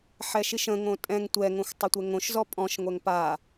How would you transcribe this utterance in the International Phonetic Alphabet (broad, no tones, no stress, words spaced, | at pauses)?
ħɛʃiʃə̃ŋõ tʼɛ̃ŋ tʷɛŋõxʷ tˤətʷɛŋõʃzɔ pʼɔ̃ʃŋʷɛŋ pa